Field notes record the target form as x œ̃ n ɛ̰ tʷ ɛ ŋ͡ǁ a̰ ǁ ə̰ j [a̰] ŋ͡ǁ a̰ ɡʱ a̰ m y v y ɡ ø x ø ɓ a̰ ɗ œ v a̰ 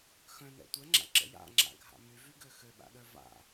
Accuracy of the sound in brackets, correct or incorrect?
correct